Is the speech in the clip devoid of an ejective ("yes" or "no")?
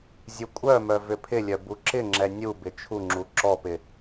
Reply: no